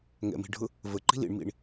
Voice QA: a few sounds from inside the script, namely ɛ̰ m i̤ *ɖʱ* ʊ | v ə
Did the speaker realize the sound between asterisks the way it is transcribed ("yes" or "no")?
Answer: yes